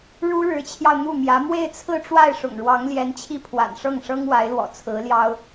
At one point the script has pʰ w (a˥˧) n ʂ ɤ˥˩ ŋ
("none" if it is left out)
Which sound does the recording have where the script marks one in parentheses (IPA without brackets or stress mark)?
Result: a̰˨˩